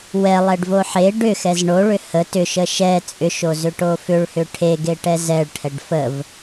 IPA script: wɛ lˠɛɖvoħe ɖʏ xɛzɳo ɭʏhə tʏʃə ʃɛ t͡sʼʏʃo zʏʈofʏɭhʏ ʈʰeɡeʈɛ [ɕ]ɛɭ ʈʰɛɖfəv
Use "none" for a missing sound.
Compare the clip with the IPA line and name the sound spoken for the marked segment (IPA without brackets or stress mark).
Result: z